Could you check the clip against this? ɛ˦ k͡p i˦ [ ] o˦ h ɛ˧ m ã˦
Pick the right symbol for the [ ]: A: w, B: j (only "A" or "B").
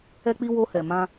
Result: A